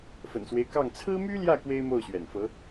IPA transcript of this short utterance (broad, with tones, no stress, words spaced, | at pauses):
fə̰˨˩nswe˦ɪ̯kɑ˥˩ŋ t͡sʰɹ̩˥my˥ljä˥˩ kwe˥ɪ̯mo˥˩ʊ̯ɕɥɛ̰˨˩nfɤ˧˥